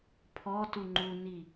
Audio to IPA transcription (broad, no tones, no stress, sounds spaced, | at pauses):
pʰ ɔ t u ŋ͡ǃ u n i